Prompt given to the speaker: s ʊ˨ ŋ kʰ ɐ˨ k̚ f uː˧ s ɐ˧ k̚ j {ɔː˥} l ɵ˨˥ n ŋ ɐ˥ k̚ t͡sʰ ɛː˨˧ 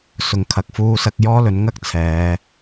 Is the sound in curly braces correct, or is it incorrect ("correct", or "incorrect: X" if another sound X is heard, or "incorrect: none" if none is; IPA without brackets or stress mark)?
correct